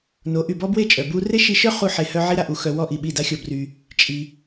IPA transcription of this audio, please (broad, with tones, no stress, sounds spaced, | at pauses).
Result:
n o˨˦ ʔ y˨ b ɔ˦ b w e˦˨ t͡ʃʼ œ˨ b u˧ r e˦ ʃ i˧ ʃ œ˦ χ u˧ ħ e˨ h œ˧ ʕ i˦ ɾ a˧ ʔ u˧ x œ˧ w ɔ˦ ʔ i˨ ɓ i˦˨ d a˦ xʲ ɔ˧ b r y˧ | t͡ʃʼ i˧